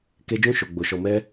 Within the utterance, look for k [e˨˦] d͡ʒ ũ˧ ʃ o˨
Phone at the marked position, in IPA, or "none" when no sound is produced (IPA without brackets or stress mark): e˧